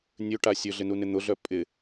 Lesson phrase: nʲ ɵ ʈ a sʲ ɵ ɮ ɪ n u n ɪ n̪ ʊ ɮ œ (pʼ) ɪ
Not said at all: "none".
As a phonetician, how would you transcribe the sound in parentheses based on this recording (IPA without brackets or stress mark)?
pʼ